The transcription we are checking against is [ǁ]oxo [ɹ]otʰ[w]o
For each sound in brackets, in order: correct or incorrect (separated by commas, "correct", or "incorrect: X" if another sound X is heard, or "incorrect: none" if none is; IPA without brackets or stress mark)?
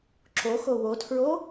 correct, incorrect: w, incorrect: ɹ